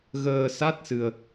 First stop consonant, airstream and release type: plain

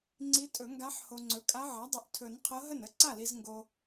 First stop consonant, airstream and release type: click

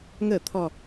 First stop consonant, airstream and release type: aspirated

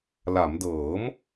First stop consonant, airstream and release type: plain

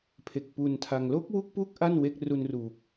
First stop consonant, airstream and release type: aspirated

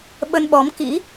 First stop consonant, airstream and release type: implosive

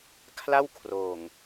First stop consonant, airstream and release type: aspirated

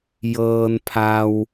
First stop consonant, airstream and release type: aspirated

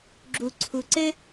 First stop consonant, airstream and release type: click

